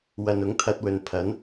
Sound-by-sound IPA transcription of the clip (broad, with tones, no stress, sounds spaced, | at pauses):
w ɐ˨ n ʊ˨˥ ŋ t̪ʰ ɐ˧ t̚ w ɵ˨ n pʰ ɐ˨˥ n